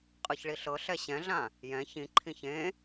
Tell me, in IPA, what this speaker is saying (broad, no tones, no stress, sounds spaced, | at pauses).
qʼ ɯ ç ɭ i ɬ ɤ ɬ ɛ ɕ ɛ̃ ɮ ã | j ɛ̃ ç ĩ ǃʰ ĩ ç ẽ